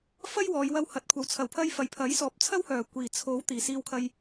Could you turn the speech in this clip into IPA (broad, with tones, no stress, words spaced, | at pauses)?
fɐ˥jwɔː˨˧jwɐ˧w hɐ˨˥t̚kʷʰɐ˨˥w t͡sʰɐ˨˩wpʰɐ˧j fɐ˨jpʰɐ˨˥jsɔː˨p̚t͡sʰɐ˥w hœː˨˩ kʷiː˨˩t͡sʰo˨˥w t̪iː˨˩siː˧wkʰɐ˧j